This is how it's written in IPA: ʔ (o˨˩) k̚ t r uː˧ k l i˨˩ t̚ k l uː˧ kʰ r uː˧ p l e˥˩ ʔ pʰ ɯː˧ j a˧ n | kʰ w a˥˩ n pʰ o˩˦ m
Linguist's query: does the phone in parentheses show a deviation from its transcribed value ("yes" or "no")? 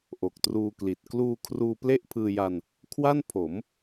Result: no